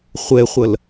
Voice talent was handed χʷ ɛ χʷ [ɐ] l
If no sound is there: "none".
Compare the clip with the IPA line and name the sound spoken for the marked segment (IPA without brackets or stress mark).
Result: ɐ